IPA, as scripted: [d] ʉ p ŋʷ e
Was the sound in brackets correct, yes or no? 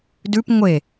yes